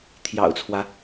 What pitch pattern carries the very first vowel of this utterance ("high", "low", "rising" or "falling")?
low